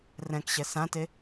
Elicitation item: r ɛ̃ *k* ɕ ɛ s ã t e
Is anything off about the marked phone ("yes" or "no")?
no